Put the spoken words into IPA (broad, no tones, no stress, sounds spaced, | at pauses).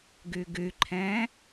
ɡ ʉ ɡ ʉ ǃʰ ɛ̃ː